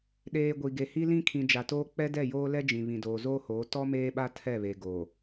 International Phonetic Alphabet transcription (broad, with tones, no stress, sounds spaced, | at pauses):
ɗ eː˨ ɡʷ i˨ ɡ e˨ h i˦ l ĩ˦ kʰ ĩ˨ d͡ʒ a˨ t oː˦ k͡p ɛ˦ d ɛ˦˨ j oː˦ l ɛ˦ d͡ʒ ĩ˨ β ĩ˨ d oː˨ z oː˦ h oː˨˦ t ɔ˦ m eː˦ ɓ a˦ tʰ ɛ˦˨ β e˨ ɡ o˨